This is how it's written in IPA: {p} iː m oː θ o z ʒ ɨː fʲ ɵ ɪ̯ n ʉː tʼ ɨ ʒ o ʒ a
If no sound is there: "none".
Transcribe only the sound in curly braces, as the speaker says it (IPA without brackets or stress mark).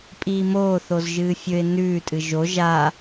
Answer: pʼ